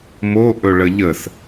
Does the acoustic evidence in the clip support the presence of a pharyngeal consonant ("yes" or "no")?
no